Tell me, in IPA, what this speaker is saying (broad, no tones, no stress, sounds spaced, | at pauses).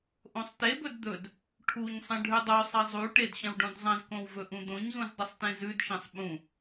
ʔ õ sˤ t e b ɵ d d̪ ɵ d | ʈʰ u ɲ sˤ ɐ̃ ɖʱ ʉ dˤ o sˤ ɐ zˤ u ʈ e d ɕ ɐ̃ w ɖ õ d zˤ ɐ̃ z k õ w v ɵ ʔ ũ d̪ õ ɲ z ũ z dˤ ɵ sˤ t ẽ z ʉ d ʃ ẽ sˤ ɓ ũ